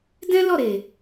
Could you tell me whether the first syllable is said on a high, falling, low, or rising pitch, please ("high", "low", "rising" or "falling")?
high